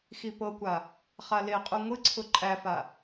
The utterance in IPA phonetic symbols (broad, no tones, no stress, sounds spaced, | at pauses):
x i p ɤ kʷ a | χ a l e qʼ u ŋʷ ɨ ǀʰ ʊ ǃʼ æ f a